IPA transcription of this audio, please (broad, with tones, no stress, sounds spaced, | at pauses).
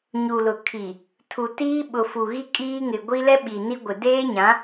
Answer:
ɲ u˨ l ʊ˨ kʰ i˨ | tʰ u˨ t iː˦ ɓ ʊ˨ f u˨ ɣ i˦ kʼ iː˦ ŋ ɪ˨ ɡʷ i˦ l ɛ˦ ɓ i˨ n i˦ ɡʷ ɪ˨ d eː˦ ɲ ã˨˦